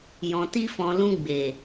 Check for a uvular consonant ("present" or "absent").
absent